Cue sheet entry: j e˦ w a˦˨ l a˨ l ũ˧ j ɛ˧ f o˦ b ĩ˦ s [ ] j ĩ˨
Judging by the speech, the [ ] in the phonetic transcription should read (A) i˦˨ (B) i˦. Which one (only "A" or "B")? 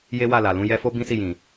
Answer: A